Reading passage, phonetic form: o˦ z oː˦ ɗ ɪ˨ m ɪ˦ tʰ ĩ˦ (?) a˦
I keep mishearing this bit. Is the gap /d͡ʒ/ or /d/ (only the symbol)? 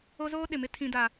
d